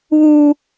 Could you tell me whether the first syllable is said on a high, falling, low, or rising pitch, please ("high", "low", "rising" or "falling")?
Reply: high